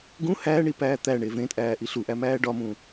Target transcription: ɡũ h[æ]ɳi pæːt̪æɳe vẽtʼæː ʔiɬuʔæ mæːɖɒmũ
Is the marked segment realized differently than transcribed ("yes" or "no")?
yes